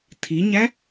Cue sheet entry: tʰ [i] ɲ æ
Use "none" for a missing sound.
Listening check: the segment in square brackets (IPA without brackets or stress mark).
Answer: i